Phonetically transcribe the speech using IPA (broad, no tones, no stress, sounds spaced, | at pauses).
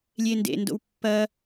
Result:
lʲ e n d ḛ n d o̰ w pː ɐ